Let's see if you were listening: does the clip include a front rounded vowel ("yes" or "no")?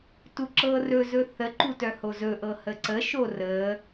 yes